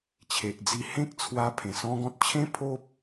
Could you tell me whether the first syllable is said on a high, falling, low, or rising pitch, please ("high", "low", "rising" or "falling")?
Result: low